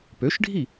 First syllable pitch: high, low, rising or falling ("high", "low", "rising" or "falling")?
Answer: rising